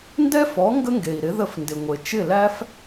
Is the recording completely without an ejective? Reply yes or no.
yes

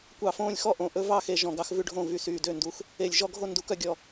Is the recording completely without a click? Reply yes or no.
yes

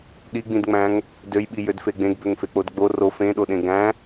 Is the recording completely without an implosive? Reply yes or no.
no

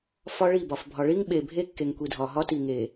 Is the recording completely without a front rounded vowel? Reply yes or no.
yes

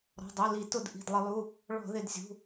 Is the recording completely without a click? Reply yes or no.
yes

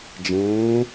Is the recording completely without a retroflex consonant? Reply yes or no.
yes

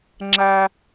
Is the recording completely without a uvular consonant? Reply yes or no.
yes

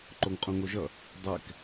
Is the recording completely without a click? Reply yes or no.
no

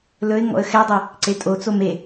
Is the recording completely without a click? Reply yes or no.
no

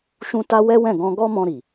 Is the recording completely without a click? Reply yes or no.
yes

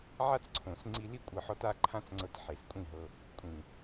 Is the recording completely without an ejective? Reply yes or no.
no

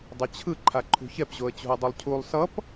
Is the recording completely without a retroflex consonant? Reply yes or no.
yes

